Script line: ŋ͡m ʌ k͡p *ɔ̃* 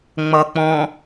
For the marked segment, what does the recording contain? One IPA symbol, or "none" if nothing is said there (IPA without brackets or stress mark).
ɔ̃